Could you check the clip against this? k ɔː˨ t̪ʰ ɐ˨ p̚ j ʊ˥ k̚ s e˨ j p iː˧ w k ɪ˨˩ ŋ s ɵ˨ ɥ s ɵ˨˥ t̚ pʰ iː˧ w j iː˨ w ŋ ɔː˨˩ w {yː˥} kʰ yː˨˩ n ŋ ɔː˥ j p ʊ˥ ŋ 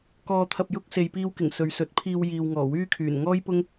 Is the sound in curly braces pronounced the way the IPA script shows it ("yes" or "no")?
yes